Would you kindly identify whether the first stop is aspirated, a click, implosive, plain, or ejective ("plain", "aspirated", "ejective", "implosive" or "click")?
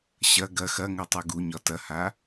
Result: plain